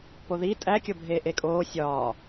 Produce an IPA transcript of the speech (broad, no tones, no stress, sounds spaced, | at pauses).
p o ð i tʼ æ kʲ o bʱ eː ʔ e kʼ oː sʲ ɒː